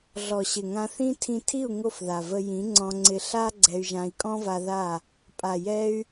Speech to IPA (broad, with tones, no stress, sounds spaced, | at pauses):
ɮ ɔ˨ ɕ ɪ˨ ŋ ã˧ θ ĩ˦ tʰ ĩ˧ tʰ i˦˨ u̯ ŋ o˦˨ f ð a˨ v ə˧ j ĩ˨˦ ŋ͡ǀ ɔ̃˧ ŋ͡ǀ ɪ˧ ɬ a˦ ɡ͡ǀ ɛ˧ y̯ ʒ ã˧ i̯ kʼ ɔ̃˦ v a˧ ð a˦˨ | pʼ a˨ j ɛ˧ y̯